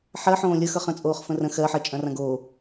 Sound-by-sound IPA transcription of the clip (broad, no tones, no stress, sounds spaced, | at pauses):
ħ ɜ ħ õː lʲ ə x ʌ χ ə̃ t͡sʼ oː χ f ə̃ r ə̃ x ɜ ħ ɜ t͡ʃʼ ɐ̃ r ɐ̃ ɡ oː